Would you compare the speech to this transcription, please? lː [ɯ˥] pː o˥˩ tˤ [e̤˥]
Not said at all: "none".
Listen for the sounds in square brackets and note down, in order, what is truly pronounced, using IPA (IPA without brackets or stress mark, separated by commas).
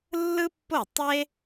ɯ˥, e˥